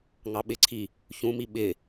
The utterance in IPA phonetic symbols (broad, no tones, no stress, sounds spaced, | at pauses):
ŋ ɑ ɓ ɪ ǀʰ i | ç ũ m i ɓ ɪ